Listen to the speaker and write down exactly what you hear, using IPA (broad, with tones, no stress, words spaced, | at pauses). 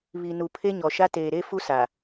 βi˨ nu˨ pʰe˦ɲɔ˨ʃa˦ teː˨ɾe˦ fu˦sa˨